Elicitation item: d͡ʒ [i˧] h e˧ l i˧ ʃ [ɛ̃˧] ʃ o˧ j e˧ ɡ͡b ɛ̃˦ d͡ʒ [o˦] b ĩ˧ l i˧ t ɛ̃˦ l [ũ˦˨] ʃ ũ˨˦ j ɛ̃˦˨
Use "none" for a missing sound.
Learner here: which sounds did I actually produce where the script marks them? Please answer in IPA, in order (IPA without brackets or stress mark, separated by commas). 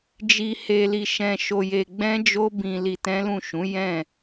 i˧, ɛ̃˧, o˦, ũ˦˨